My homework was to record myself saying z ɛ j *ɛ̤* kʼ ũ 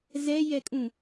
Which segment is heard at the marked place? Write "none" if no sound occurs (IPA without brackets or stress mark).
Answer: ɛ